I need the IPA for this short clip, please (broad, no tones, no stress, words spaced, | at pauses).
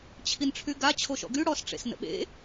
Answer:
t͡ɕʰinʈ͡ʂʰyɡa t͡ɕʰoʃɔ̰ɡy ɽɔs ʈ͡ʂḛsnə̰ɓḛ